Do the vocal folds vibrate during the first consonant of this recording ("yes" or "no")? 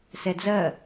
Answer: no